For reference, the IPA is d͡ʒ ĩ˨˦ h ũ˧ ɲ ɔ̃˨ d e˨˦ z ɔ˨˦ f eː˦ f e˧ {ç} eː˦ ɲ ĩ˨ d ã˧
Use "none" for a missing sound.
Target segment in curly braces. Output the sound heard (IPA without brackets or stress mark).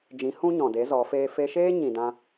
ʃ